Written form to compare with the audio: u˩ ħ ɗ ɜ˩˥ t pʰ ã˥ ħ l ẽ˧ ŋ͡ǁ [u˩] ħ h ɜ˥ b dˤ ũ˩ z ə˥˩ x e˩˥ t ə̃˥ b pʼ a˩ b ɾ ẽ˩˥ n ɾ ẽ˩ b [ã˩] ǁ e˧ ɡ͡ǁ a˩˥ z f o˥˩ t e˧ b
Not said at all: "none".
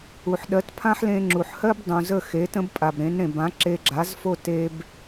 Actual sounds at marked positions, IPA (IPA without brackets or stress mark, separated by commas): u˩, ã˩˥